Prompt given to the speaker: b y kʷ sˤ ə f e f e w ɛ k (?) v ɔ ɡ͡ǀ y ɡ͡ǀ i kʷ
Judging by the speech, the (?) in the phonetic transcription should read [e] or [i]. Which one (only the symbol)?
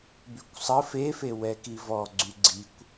i